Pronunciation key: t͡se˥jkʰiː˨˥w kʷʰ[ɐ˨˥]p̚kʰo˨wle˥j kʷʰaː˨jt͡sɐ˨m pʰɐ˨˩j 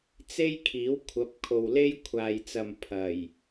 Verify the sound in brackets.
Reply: correct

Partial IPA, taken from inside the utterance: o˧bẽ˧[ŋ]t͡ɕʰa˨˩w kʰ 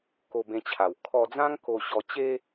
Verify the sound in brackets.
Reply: incorrect: none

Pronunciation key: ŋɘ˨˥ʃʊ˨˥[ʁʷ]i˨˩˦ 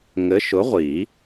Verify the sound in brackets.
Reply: correct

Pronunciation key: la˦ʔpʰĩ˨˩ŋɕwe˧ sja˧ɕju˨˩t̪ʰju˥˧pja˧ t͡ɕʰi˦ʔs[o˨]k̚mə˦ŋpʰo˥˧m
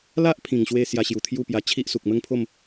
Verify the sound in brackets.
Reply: incorrect: u˨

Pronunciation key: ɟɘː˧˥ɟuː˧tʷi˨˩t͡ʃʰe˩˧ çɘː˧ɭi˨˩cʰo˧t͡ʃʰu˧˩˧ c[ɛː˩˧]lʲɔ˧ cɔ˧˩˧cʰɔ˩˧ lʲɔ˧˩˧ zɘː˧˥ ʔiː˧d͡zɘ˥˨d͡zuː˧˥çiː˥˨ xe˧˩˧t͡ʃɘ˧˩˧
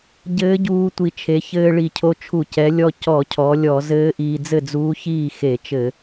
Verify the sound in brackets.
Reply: incorrect: ɛ˩˧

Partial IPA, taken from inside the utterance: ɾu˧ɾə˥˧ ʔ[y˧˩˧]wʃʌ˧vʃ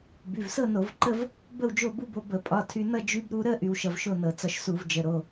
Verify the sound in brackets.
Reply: incorrect: y˧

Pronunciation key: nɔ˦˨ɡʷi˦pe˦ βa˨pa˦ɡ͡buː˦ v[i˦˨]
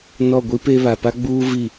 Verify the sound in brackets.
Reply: correct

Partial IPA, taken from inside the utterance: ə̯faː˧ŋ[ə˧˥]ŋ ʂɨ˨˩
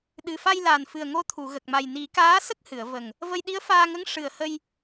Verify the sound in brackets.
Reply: correct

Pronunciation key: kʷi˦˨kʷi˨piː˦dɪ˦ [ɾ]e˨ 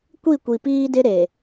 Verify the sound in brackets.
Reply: correct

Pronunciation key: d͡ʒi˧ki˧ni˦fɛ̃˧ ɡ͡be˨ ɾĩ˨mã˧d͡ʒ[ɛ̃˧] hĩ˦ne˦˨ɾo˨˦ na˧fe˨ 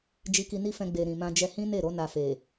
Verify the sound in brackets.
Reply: incorrect: ɛ˧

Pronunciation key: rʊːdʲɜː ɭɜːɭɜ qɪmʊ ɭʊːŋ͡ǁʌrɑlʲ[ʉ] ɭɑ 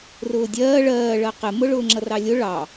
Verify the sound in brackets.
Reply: incorrect: ʊ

